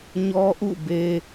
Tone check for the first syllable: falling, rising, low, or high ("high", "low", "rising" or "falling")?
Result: high